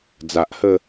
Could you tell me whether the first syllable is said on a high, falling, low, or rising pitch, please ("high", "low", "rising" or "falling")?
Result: low